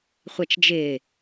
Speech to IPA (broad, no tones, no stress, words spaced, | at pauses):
χʷɛt͡ʃd͡ʒɪː